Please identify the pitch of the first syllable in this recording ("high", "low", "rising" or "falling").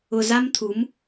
low